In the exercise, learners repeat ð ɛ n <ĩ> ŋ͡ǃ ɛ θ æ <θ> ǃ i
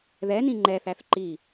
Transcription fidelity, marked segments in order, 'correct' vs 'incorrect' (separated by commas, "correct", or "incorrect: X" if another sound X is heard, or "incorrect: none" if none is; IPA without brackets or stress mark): correct, correct